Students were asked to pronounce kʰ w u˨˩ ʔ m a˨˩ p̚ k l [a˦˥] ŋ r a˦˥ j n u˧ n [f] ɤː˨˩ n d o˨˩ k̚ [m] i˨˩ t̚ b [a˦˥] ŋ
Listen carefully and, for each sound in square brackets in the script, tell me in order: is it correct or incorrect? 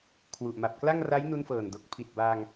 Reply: incorrect, correct, incorrect, incorrect

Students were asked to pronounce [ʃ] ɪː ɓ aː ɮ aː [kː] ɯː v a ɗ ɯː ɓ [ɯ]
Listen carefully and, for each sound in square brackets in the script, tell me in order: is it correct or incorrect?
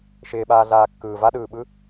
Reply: correct, correct, correct

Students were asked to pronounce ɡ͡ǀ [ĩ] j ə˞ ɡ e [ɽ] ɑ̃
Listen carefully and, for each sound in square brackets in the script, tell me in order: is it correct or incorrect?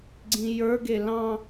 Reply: correct, incorrect

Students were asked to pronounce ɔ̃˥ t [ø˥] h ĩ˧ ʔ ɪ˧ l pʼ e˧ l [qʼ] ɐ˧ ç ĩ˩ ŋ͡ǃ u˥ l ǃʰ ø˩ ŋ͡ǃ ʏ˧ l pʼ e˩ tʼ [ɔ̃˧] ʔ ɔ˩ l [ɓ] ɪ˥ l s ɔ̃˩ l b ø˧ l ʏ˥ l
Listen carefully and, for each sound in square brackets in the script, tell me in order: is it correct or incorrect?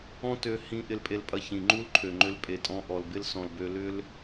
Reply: incorrect, incorrect, correct, incorrect

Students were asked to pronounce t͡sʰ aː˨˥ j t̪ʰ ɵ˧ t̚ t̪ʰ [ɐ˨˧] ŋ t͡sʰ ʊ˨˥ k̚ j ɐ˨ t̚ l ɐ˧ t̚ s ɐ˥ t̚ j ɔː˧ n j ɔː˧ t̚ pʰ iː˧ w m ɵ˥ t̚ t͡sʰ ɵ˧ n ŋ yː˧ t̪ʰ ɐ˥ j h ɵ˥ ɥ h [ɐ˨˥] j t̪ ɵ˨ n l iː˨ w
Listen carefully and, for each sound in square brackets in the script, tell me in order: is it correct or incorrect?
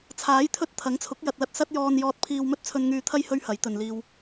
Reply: incorrect, correct

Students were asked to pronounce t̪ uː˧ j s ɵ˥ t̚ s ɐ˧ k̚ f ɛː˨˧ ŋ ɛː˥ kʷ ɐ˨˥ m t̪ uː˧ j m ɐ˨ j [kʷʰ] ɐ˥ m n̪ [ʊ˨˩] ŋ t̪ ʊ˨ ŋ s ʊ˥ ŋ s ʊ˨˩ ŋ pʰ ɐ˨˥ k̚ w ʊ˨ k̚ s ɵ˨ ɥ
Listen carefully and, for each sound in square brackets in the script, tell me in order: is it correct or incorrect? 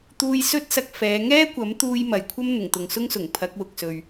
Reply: correct, correct

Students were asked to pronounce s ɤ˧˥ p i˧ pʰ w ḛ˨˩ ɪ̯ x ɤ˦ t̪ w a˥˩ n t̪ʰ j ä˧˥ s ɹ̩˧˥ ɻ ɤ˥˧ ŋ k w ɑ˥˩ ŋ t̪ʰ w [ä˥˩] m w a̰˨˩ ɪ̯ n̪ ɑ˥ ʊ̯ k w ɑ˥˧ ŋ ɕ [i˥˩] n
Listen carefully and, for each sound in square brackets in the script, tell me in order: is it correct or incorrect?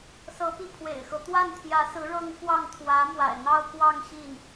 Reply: incorrect, correct

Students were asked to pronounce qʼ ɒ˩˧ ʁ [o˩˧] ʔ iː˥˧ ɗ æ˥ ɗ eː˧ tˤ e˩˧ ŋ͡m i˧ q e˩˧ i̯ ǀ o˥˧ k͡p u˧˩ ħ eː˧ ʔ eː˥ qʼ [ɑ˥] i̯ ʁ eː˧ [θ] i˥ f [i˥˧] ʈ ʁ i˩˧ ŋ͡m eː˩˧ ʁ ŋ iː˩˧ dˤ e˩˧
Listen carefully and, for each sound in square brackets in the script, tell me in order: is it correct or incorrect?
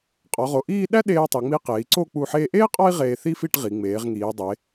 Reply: correct, incorrect, correct, correct

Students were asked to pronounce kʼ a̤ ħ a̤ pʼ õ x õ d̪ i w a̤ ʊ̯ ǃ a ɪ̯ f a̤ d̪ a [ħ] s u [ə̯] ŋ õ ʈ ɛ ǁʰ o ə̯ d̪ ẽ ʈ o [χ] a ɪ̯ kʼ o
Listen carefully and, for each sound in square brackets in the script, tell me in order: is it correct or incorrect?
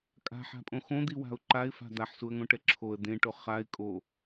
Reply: correct, correct, correct

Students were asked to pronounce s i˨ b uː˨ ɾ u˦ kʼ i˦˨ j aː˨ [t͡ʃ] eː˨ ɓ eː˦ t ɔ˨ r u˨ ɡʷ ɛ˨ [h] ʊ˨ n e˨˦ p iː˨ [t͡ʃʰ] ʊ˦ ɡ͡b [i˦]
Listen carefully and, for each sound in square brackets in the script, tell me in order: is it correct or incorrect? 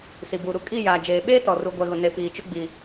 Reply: incorrect, incorrect, incorrect, correct

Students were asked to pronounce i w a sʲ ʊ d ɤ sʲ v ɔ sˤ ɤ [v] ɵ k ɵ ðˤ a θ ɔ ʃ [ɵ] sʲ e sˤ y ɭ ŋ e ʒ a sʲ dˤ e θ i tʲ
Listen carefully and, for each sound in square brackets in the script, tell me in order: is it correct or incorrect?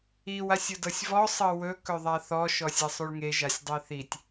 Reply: incorrect, incorrect

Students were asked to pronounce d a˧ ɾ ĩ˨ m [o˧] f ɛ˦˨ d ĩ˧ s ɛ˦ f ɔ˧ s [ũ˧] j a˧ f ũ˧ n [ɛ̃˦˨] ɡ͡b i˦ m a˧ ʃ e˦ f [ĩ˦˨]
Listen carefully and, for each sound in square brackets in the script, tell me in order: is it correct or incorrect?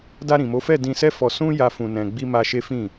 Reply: incorrect, incorrect, incorrect, correct

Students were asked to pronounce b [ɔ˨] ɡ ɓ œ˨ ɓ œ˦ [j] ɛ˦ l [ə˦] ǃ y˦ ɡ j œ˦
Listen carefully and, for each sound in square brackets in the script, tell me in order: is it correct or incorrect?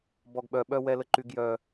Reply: correct, incorrect, correct

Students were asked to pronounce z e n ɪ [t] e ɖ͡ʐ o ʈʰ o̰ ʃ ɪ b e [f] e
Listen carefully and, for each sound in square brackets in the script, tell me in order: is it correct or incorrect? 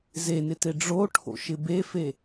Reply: correct, correct

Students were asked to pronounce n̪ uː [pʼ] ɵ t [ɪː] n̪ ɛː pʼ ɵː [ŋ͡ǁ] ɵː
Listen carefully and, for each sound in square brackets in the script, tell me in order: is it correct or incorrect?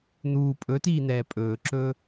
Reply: correct, incorrect, incorrect

